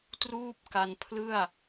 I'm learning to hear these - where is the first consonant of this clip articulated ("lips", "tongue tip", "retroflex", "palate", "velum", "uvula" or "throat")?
tongue tip